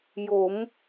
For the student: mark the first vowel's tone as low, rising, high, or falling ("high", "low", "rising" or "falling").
rising